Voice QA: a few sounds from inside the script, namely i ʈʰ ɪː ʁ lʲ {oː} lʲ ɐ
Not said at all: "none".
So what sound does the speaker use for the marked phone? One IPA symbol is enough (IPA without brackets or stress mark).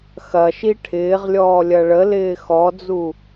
ɔː